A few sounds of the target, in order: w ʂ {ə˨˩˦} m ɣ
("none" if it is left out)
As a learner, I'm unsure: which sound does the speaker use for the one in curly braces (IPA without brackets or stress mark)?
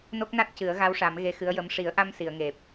a˨˩˦